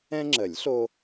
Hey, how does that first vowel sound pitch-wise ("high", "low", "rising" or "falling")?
high